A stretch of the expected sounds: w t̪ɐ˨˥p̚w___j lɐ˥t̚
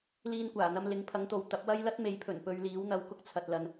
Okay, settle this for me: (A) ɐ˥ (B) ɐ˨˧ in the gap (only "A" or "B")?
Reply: A